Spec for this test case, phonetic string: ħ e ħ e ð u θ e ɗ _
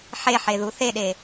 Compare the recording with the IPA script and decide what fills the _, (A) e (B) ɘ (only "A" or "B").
A